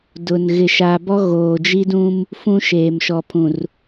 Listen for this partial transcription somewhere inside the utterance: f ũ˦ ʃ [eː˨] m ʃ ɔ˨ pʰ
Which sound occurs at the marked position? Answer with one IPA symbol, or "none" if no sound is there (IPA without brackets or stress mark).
eː˨